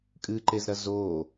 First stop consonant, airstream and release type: ejective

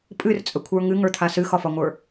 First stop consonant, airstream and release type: ejective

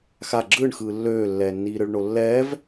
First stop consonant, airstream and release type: click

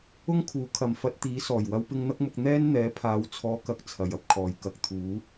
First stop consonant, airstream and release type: aspirated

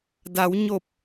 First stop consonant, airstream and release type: plain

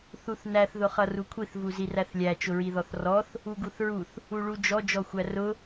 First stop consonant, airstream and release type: aspirated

